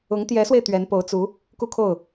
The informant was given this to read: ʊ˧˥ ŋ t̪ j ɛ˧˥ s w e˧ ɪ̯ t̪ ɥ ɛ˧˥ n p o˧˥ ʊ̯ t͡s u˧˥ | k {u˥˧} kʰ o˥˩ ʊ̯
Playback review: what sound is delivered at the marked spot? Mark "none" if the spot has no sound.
u˥˧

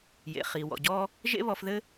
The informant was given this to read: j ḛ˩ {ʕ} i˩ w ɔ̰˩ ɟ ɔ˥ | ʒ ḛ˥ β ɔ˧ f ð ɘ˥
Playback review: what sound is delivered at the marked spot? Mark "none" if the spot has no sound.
χ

